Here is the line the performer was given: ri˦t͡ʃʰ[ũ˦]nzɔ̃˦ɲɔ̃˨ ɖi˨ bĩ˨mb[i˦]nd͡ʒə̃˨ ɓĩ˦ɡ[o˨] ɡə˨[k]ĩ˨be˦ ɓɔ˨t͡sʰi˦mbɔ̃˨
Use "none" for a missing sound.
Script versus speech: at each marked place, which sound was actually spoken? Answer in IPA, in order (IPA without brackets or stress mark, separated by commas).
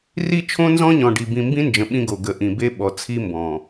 õ˦, ĩ˦, o˨, ʔ